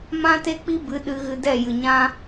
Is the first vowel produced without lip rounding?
yes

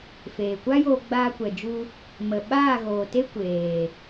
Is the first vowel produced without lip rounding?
yes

